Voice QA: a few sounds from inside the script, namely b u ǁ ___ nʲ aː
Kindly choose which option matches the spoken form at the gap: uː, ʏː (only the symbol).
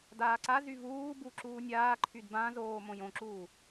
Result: uː